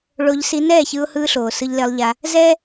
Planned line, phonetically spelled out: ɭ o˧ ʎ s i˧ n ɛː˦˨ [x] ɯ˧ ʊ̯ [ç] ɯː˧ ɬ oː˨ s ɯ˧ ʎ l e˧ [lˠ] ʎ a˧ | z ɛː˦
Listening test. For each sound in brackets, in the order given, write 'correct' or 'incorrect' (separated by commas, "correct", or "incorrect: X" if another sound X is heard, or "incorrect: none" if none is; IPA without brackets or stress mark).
incorrect: ç, incorrect: h, correct